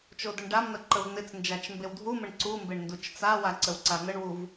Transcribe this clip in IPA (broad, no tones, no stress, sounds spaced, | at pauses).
t͡ʃ o d ə ɳ ɖ a m n̪ ə ǃ ə v n̪ ɪ t͡s n d͡ʒ a t͡ʃ m b e w dʱ u m ə ɳ ǀ u m b e ɳ n d u t͡ʃ t͡s a w a ǀ ə w ǀ a n̪ ə ɳ w u v